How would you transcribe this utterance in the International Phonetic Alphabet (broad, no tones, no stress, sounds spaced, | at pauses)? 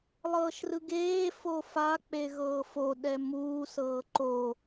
lˠ ɤː ʃ r ɯ ɡ eː f o f a k͡p e ɣ ɤː f o ɗ ɛ m uː s ɤː ǃ o